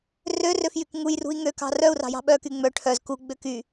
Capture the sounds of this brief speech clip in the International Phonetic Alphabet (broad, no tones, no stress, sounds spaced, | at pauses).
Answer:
r ø r ø f j y k ŋ u j r ṳ i̯ ŋ ø k ɑ̤ r œ u̯ r ɑ̤ j ɑ̤ ɓ œ k y ŋ͡m œ ʈʰ œ z k u ɡ͡b ø k y